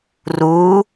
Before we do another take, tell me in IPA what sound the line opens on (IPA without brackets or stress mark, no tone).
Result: r